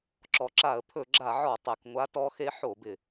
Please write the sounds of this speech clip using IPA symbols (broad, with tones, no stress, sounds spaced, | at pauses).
ǁ ɔ˨˩ ǁ a˧˩˧ ə̯ pʰ ɵ˧˩˧ ɡ͡ǁ a˧˩˧ ʕ ɔ˧˩˧ tˤ ɛ˨˩ k ŋʷ a˧˥ t ɔ˧˥ x e˧˥ ħ o˧˩˧ b ɪ˨˩